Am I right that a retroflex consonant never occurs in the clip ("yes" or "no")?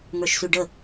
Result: no